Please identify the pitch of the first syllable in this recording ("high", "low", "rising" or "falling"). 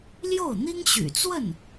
falling